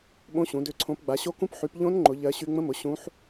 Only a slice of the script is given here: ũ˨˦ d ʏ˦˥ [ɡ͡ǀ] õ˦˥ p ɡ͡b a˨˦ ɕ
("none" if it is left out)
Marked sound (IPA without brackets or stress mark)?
ǀʰ